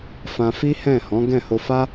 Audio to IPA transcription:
f ã˧ f i˦ h ɛ̃˦˨ h ɔ̃˨˦ ɡ ɛ̃˦˨ h o˧ f a˦

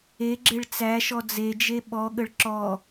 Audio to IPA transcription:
e ɡ͡ǁ e ɭ t͡s æ ʃ ɔ d͡z e d͡ʒ e ɓ ɔ ɠ ə ɭ ǁ ɔ

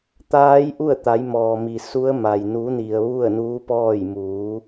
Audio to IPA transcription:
t̪ aː˧˥ j ʔ u˥˨ ə̯ t̪ a˩˧ j m ɔː˩ m i˩ s u˧˥ ə̯ m a˩ j n u˩˧ n i˩ ə̯ ʋ u˥˨ ə̯ n uː˧˥ p ɔː˥˨ j m uː˩˧

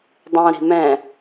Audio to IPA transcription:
dˤ õ ɾ i̤ m ɛ̃

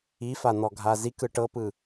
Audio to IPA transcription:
i f a n̪ ɔ ɡʱ a z i k ɯ ʈ ɤ p ɯ

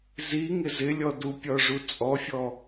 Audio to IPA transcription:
z i ŋ ɪ z ɪ lʲ ɔ d u pʲ ɔ ʐ u t͡sʼ ɔ fʲ ɔ

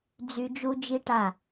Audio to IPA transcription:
d͡z y˧ d͡ʒ u˦ d͡ʒ i˦ ʈ a˦˨

